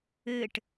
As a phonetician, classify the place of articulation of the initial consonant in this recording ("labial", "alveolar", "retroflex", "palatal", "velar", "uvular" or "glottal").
retroflex